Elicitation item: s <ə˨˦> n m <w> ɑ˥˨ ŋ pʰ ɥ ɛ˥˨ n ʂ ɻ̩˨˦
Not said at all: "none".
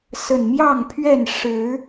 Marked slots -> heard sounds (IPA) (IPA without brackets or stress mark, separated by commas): ə˨˩, j